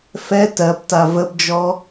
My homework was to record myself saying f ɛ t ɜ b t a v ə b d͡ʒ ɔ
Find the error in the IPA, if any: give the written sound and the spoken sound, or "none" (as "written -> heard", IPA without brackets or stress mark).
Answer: none